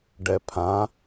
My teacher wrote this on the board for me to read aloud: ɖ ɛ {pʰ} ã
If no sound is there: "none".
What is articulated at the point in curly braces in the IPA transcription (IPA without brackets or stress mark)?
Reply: pʰ